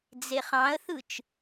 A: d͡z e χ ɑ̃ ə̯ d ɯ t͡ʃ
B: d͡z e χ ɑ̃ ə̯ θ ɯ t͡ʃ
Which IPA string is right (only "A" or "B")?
B